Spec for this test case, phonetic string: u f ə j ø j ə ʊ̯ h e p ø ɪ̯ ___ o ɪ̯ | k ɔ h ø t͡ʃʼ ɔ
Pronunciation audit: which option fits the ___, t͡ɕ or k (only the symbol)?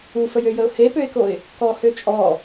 k